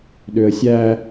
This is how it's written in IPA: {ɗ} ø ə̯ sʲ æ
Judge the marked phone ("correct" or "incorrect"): correct